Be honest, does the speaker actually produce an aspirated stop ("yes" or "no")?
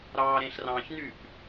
no